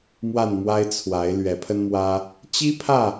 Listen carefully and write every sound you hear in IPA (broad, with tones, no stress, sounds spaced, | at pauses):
m w a˥˨ n m w a˦ ɪ̯ t͡sʰ w a˨˦ ɪ̯ l ɥ ɛ˨˦ pʰ ə˦ n m w ä˦ | t͡ɕ i˦ pʰ ä˥˨